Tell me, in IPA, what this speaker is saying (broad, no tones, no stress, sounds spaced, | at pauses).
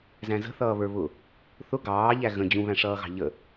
z æ̃ z ə̤ θ ʌː β ə˞ β ʊ | θ ʊ ɡ ɑː ʎ æ ɣ ə̃ d͡ʑ ũ β æ̃ ʂ ʌː ɣ ɑ̤ ʎ ə